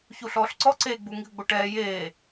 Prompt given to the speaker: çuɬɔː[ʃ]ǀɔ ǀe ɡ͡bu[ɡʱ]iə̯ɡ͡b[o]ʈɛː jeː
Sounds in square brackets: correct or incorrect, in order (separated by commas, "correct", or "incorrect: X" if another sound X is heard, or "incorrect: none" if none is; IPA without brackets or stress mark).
incorrect: ɬ, incorrect: ŋ, correct